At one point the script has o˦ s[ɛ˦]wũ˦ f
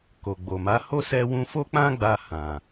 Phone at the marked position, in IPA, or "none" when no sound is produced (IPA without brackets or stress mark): ɛ˦